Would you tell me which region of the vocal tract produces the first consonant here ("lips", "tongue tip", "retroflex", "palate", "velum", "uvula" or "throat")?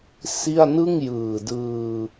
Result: tongue tip